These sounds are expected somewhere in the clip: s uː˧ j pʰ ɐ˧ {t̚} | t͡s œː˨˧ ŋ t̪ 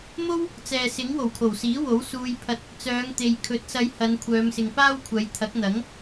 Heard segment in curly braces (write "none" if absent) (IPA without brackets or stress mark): t̚